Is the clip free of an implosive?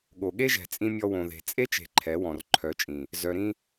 no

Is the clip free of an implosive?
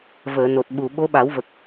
no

